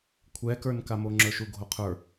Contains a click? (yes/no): yes